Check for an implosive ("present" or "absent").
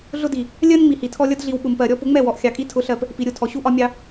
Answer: present